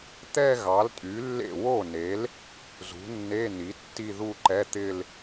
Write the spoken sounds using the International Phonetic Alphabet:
t̪ɛ˥˧ɣɑ˩˥ltʼy˩˥lːḛ˥˩ wo˥˩ne˩˥l | zṳ˩˥nːe˧˥˧ni˩˥ tːi˥˧ðu˥˧ǃɛ˧˥˧t̪ɪ˥˧l

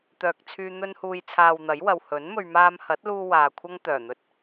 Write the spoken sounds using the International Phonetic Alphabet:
t̪œː˨k̚t͡sʰyː˧ n̪ɵ˧nhuː˨jt͡sʰaː˨w n̪ɐ˨˥jwɐ˨w hɵ˨˥n mɵ˧ɥ maː˧mhɐ˨˥t̚luː˧ waː˨kʷʰɐ˥ŋ t̪œː˨˩n̪ɵ˧t̚

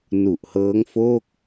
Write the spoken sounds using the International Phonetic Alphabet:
nu˨˩ʔhɤː˦˥ŋfoː˥˩k̚

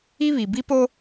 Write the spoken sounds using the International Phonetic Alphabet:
i˦βi˨bi˦po˦

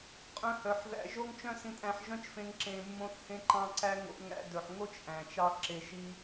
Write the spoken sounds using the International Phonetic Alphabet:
qʼœ̃˧hœ˨ħðæ̰˧ ʒo˦ŋt͡ʃœ̃˦ sĩ˧tʼæ̃˧ħʒœ̃˦t͡ʃfẽ˧ŋ ǁẽ˨mːõ˧θhẽ˧ǃɑ̃˧ ǀæ˦ ŋo̰˧ŋæ̰˧ dɵ˨ħŋo˦t͡ʃ ʔæ̃˨t͡ʃɑ˦ǁe˧ ʃi˦

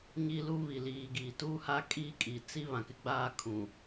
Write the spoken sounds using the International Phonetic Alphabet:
ɲi˦lu˦βi˨ liː˨ɡiː˨tuː˦ha˦ kʼiː˦kʼi˨ t͡si˦ βã˨kɪ˦ɡ͡baː˦ kʰũ˨

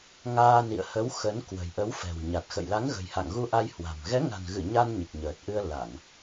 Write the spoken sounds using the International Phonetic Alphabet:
ŋaː˧nḭ˧˨ə̯ hə˨˦w xə˨˦n kwə̤˨˩jʔə˨˦wfɛ̤˨˩w ɲa˨˩t̚xə̰˧˨jla˨˦ŋ ɣə̤˨˩jha̰˧˨ŋɣu˧ʔa˧j hwa̤˨˩m ɣɛ˨˦ŋa̤˨˩nɣɨ˧˩ ɲa˧n ɲɨ˨˩k̚ɲəː˨˩t̚ʔɨ˧ə̯ la˧˩˨ŋ

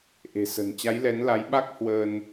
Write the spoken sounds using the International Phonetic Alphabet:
ʔe̤˨˩sə̤˨˩n t͡ɕa˨˦jlɛ˨˦nla˨˦j ɓa˦˥k̚hwəː˧n

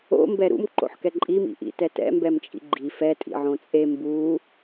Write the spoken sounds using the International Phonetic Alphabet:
o̰ mbɛɾṵm ǃo̰ħkɛǃʼim ḭʔḭtɛtɛ̰ mbɛmt͡ʃʼḭɡ͡ǃi fɛ tʼḭʕõt͡sʼe mbu

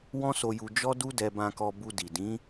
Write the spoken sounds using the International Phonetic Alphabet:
wɔ̃˦so˧ju˧ d͡ʒɔ˦du˦dɛ˧ bã˧kɔ˧ bu˧di˨ dĩ˨˦

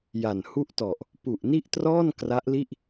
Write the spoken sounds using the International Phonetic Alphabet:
ja˨˩nhu˥˩ʔtɔ˨˩ʔ | pu˨˩ʔni˥˩ʔtrɔː˥˩n kra˦˥ʔli˥˩ʔ

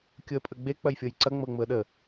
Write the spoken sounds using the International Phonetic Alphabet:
kʲʊə̯pʼəɡ͡be k͡pɐjfʲɤjǀɐ ŋ͡mɤŋ͡mʊə̯ɗə

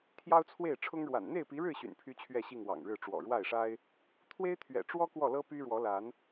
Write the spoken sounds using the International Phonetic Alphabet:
t̪ʰjɑ˦ʊ̯t͡sʰwe˥˨ɪ̯ ʈ͡ʂʰʊ˦ŋɻwa̰˨˩n n̪e˥˨ɪ̯pi˨˦ɻɻ̩˥˨ ɕy̰˨˩npʰy˦t͡ɕʰɥɛ˥˨ɕi˥˨ŋ wɑ̰˨˩ŋɻɻ̩˥˨ ʈ͡ʂwɔ̰˨˩ɻwa˥˨ɪ̯ʂa˦ɪ̯ | t̪ʰwe˦ɪ̯t̪ʰɥɛ̰˨˩ʈ͡ʂwɔ˦ kwɔ˥˨lɤ˦py˦ɻwɔ˨˦ la˨˦n

